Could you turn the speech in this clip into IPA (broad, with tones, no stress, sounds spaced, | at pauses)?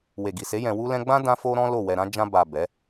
w e˨ ɡ i˨ s e˨˦ j ɛ̃˧ w u˦ l ɛ̃˦ ɡ͡b ã˦ d ã˦ f o˦ ɾ ɔ̃˦ l o˦˨ w ɛ˧ ɾ ã˦ d͡ʒ ã˧ b a˨ b ɛ˨˦